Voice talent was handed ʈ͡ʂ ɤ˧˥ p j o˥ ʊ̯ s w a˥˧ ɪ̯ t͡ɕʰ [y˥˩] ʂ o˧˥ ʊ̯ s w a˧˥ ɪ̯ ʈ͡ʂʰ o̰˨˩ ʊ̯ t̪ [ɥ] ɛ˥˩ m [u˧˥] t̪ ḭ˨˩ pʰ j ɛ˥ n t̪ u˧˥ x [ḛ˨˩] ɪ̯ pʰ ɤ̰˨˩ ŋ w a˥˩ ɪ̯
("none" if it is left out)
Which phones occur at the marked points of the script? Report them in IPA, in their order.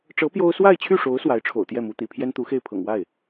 y˥˩, j, u˧˥, e˥˩

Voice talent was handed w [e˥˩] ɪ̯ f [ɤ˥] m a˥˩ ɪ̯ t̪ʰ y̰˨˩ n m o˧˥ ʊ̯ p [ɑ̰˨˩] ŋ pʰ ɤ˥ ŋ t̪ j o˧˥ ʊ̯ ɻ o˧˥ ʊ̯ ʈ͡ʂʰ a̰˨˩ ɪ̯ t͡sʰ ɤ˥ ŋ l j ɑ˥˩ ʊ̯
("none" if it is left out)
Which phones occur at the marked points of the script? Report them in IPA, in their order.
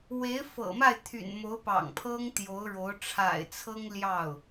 e˧˥, ɤ̰˨˩, ɑ̰˨˩

